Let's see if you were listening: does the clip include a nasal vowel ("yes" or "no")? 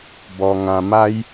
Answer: yes